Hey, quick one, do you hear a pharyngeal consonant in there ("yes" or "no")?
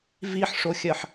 yes